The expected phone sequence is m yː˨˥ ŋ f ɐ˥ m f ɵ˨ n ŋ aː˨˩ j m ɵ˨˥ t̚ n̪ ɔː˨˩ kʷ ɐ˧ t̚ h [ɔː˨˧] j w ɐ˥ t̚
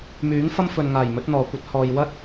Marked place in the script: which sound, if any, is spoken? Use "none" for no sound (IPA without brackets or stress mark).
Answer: ɔː˨